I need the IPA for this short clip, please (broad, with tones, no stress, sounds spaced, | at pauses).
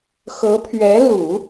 x ɤ˧˥ pʰ ɥ ɛ˧˥ l u˨˩˦